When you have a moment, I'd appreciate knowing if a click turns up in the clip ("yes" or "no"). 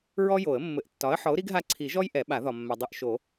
yes